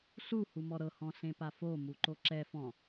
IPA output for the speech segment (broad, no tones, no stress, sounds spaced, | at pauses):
ɬ u h u m ɔ ɾ ɤ h ɔ̃ ɬ ẽ p a f o m u ǃ o ǁ ɛ f ɔ̃